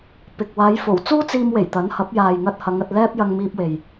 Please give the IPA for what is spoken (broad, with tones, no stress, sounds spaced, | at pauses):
p ɪ˨ k̚ w aː˨˧ j f o˨˩ w t͡s uː˥ t͡s iː˧ m w e˨˩ j t̪ ɐ˨˥ n h ɐ˨˥ p̚ j aː˨ j ŋ ɐ˧ t̚ h ɐ˨˧ ŋ ɐ˧ t̚ l ɛː˥ p̚ j ɐ˧ ŋ m iː˧ p̚ w e˨ j